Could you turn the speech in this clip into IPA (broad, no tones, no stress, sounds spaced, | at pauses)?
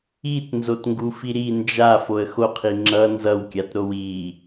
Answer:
i t n z o t ŋ ɡ u f i ɾ i n d͡ʒ a f o ə̯ x o qʰ i ŋ͡ǁ ʌ n z ʌ w kʲ a t ɾ o w i